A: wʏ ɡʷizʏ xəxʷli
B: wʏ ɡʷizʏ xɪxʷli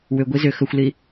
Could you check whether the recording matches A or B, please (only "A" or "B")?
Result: A